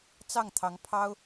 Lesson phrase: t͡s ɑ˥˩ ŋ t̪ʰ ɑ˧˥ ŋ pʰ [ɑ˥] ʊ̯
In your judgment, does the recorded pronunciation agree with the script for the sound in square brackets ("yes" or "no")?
yes